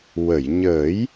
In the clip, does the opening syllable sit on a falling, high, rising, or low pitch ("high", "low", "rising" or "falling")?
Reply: low